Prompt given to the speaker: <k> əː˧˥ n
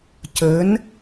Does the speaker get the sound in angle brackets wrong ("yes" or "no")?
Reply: yes